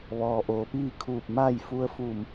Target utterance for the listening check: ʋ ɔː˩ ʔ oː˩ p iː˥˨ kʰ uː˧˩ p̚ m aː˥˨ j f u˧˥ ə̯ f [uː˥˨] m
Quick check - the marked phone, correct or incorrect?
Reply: incorrect